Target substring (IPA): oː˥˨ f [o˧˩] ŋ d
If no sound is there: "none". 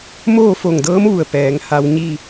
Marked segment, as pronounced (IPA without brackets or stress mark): o˧˩